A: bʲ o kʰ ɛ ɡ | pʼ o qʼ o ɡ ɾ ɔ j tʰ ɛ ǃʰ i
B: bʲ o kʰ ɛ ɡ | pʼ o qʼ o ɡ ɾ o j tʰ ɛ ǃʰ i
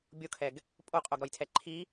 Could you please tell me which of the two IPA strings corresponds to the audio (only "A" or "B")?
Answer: A